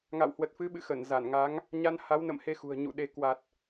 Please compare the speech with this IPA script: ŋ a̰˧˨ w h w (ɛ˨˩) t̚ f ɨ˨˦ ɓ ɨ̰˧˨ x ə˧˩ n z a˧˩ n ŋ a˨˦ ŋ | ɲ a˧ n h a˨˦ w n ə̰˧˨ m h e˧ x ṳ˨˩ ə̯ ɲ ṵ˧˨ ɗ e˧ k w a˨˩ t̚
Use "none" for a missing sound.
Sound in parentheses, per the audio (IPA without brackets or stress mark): ə˨˩